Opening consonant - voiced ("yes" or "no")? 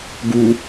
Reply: yes